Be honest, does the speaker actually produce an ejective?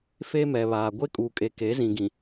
yes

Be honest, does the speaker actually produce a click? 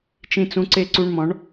yes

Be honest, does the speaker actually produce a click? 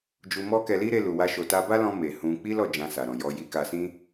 no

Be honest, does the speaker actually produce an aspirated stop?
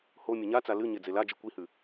no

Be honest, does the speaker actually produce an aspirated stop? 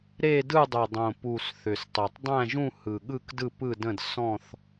no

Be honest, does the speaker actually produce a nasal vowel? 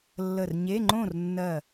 yes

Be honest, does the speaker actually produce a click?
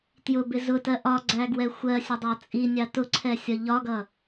yes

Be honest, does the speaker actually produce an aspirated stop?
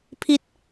yes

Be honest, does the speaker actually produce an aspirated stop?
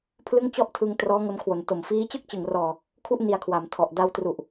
yes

